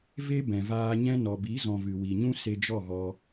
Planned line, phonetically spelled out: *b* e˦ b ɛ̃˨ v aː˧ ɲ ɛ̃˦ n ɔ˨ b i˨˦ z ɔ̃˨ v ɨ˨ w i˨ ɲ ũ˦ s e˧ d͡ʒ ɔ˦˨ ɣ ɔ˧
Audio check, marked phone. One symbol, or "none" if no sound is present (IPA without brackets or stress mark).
v